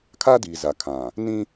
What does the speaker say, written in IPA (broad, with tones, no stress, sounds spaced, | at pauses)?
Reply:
kʰ aː˦ d iː˨ z a˨ kʰ ã˨ | n ĩ˦